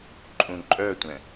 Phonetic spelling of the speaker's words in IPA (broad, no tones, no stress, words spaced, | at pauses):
ǃʼũǃʼœtʷɛ̃